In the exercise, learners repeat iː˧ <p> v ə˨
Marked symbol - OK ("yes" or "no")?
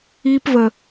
yes